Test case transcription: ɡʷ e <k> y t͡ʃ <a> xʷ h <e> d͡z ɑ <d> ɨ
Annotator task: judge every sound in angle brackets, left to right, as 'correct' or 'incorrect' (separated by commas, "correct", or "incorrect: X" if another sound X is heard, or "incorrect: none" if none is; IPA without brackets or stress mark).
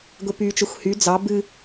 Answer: incorrect: p, incorrect: ə, incorrect: y, incorrect: b